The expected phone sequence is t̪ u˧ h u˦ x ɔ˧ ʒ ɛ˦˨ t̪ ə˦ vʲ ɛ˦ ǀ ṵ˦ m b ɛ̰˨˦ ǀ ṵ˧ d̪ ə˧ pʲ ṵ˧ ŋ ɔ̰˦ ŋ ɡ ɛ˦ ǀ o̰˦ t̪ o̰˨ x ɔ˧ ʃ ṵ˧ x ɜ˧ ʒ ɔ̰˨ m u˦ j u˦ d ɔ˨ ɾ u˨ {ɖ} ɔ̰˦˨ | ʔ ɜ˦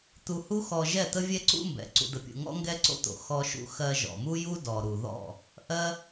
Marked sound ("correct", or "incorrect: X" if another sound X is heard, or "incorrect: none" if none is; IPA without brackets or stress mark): incorrect: ð